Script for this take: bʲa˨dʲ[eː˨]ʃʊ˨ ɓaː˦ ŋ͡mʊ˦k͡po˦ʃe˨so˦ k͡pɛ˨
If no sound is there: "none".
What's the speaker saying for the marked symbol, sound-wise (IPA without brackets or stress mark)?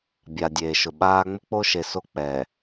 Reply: eː˨